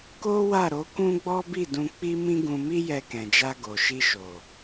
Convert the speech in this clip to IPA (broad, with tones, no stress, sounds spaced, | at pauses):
k o˦ w a˦˨ ɾ o˨˦ k ũ˦ ɡ͡b ɔ˦ b i˦˨ d ũ˧ k͡p i˦ m ĩ˦ ɡ ũ˧ m i˦ j ɛ˧ k ɛ̃˨ d͡ʒ a˧ ɡ o˨ ʃ i˧ ʃ o˨